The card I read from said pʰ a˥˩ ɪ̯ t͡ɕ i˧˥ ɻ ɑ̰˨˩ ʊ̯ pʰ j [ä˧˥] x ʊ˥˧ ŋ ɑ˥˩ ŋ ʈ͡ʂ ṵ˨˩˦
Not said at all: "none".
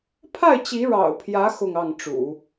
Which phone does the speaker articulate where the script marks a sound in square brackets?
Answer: ä˧˥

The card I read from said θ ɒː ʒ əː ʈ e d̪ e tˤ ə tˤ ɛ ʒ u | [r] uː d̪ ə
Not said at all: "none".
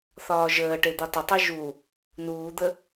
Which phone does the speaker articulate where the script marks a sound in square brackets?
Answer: n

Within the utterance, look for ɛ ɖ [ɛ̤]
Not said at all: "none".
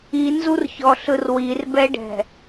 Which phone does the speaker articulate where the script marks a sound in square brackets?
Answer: ɛ̤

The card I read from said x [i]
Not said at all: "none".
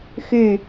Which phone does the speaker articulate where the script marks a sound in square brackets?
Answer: y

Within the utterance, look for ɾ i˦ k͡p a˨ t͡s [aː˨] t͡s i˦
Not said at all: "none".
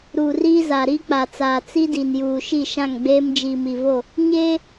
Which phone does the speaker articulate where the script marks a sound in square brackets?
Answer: aː˨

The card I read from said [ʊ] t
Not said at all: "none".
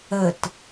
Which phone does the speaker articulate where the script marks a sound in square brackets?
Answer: ə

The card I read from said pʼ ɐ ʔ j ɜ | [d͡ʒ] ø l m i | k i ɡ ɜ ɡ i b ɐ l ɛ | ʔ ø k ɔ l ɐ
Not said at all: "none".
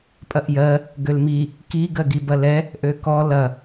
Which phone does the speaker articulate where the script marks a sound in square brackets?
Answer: ɡ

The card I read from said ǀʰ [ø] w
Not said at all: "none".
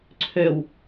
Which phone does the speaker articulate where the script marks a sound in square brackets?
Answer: ø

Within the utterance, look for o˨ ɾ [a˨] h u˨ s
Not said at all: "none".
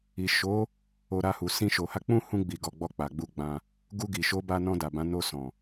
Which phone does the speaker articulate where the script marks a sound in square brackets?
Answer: a˧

